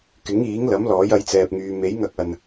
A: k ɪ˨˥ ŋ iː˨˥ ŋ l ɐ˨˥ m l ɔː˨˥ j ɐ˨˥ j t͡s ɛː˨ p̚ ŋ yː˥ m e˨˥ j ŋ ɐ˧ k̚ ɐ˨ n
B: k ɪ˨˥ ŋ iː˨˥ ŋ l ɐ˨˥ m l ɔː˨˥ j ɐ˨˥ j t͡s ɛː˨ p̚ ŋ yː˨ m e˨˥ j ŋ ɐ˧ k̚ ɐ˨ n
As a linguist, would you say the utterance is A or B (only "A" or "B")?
B